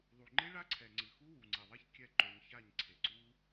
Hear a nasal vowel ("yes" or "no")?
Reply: no